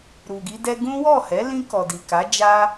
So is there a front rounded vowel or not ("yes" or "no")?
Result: no